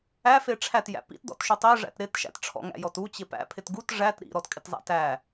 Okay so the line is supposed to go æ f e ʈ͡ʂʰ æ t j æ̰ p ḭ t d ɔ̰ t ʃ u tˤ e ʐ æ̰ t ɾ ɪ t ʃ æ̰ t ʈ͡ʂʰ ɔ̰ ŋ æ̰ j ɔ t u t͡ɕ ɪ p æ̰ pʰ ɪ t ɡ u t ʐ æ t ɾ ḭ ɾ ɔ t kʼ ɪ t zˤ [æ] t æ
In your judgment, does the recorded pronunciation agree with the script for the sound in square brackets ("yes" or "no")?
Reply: no